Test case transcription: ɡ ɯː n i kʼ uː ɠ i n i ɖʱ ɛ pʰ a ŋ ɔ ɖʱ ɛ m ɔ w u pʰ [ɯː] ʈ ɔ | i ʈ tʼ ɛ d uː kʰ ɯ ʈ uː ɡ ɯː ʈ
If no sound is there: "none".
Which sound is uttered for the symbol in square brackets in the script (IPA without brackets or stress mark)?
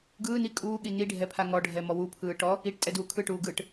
ɯː